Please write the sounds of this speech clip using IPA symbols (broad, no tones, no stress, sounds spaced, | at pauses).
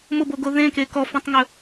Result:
m ʊ b o ɡ o ð ẽ k e k ɔ f ẽ tˤ ŋ ɵ